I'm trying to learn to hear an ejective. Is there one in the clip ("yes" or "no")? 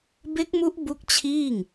no